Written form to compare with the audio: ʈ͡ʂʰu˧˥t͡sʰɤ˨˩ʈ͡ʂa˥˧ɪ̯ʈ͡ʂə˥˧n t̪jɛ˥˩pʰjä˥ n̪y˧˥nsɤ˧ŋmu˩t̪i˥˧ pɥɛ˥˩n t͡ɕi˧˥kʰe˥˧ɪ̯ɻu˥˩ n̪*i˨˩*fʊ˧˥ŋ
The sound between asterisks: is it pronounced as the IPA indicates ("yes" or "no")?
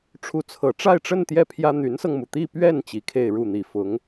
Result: yes